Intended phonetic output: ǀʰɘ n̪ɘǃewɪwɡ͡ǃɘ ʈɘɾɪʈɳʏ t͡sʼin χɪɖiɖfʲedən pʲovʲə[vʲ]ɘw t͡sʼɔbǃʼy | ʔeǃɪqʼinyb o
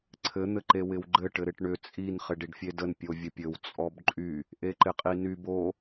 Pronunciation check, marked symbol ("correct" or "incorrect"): incorrect